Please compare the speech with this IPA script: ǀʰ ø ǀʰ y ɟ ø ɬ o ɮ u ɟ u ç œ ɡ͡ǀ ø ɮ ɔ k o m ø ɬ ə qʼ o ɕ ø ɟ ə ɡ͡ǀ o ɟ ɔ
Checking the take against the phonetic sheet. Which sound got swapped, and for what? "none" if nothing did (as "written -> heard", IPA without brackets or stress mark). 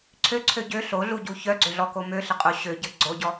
y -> ø